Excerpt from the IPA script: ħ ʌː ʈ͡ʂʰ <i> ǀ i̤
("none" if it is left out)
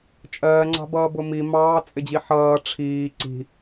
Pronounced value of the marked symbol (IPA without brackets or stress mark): iː